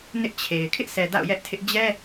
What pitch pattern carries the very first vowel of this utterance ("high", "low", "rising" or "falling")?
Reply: high